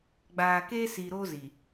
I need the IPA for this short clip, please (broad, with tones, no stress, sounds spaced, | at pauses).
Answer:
ɡ͡b aː˨ k eː˦ s iː˨ ɾ oː˦ z i˨